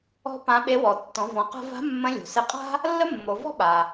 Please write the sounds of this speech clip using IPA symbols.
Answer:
ɔ̤˥ p ã˧˥ ɓ e˧˥ w ɔ˩˧ tː ɔ̃˩˧ v ɔ̃˩˧ q a̤˧ v a̤˧˥ mː ə̃˧˥ lʲ o̤˩ s ɪ˧ qʼ a̤˥ | lː ə˥ mː o˩˧ v ɔ̤˥ ɓ a˩

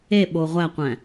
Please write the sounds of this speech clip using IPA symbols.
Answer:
e ɓ o ʁʷ æ qʷ æ̃

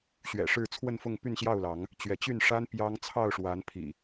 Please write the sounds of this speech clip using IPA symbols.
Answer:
ɕ ɥ ɛ̰˨˩ ʂ ɻ̩˥˨ t͡sʰ w ə˥˨ n f ʊ˥˨ ŋ p y˥˨ n ɕ j ɑ˥˨ ʊ̯ l ɑ˨˦ ŋ | t͡ɕ ɥ ɛ˨˦ t͡ɕ y˥˨ n ʂ a˦ n p j ɑ˦ ŋ t͡sʰ ɑ˥˨ ʊ̯ ʂ w a˨˦ n pʰ ḭ˨˩

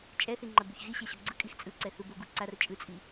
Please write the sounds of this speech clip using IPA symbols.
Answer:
t͡ʃʼ ɛ θ i ŋ͡ǃ a b u ç ɣ i ɕ ɛ ɕ o ɡ͡ǀ ɯ kʼ i x t͡sʼ ɯ ǀ ɛ θ u b o ɡ u ǀ a r t͡ʃʼ ɯ t͡sʼ i

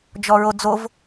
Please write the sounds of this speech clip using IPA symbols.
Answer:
d͡ʒ ɔ ɹ o d͡z o v

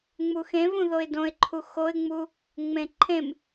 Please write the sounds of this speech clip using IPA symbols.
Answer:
ŋ͡m u x ẽ v ũ ð o ɪ̯ d õ ɪ̯ ǃʰ u x o ɪ̯ ŋ͡m u | ŋ͡m ẽ ǃʰ ẽ m

